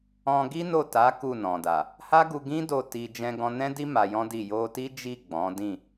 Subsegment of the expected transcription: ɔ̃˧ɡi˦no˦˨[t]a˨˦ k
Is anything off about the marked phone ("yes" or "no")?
no